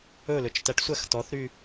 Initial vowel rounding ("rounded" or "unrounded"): rounded